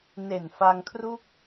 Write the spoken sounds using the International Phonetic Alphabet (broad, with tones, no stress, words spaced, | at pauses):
ne˨˩nfa˧ŋkʰru˥˩k̚